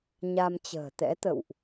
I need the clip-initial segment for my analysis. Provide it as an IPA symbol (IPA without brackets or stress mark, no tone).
ɲ